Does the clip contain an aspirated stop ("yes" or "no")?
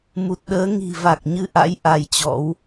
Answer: no